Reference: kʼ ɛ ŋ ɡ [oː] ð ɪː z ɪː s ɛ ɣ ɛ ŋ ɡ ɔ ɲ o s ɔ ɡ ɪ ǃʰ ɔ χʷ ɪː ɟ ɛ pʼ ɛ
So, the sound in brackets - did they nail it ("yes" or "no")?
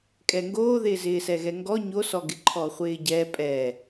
yes